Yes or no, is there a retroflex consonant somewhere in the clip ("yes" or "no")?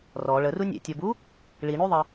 yes